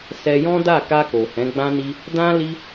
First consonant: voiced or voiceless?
voiceless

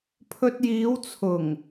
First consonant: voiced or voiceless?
voiceless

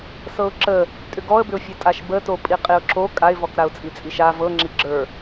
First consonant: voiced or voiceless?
voiceless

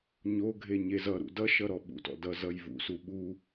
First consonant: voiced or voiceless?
voiced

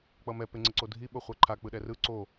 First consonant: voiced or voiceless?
voiceless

